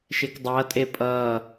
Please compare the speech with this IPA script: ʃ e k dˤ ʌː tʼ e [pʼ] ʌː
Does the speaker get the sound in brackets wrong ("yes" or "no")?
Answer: no